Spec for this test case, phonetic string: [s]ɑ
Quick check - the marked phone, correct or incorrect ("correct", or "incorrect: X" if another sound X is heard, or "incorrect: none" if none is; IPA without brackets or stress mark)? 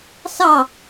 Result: correct